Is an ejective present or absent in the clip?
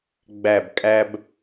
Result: present